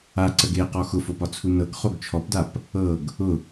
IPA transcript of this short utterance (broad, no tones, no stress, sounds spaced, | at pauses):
a ǀ ə ɡ e q ɔ x ʊ f o p ɒ t͡sʰ u n ɤ ɡ χ o ɡ t͡ʃʰ ɔ p d a p | ɤ ɡ | ʊ